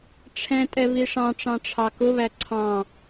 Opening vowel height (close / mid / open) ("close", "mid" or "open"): mid